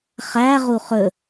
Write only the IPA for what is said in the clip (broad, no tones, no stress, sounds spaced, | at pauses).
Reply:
χ æ ʁ u χ ɵ